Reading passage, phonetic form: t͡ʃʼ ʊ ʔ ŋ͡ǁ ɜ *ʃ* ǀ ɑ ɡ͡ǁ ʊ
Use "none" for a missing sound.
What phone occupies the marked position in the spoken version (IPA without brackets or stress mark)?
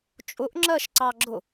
ʃ